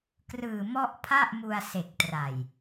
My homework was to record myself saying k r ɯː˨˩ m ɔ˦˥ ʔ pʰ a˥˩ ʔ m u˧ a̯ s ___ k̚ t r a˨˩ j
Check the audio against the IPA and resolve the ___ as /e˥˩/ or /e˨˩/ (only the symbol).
e˨˩